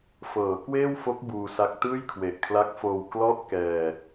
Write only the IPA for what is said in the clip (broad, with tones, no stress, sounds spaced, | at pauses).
f ɤː˩˦ k w eː˥˩ w f o˦˥ k̚ b uː˧ s a˦˥ k̚ t ɯː˥˩ j kʰ w e˨˩ ʔ kʰ l a˦˥ k̚ f oː˧ w k l ɔ˥˩ ʔ k ɛː˧